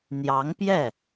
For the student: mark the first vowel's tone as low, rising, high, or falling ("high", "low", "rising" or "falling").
rising